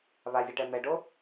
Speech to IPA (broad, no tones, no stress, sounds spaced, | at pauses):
β a zʲ ɛ ʈ ɛ m ɛ ɖ o